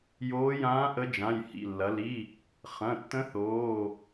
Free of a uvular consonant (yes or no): no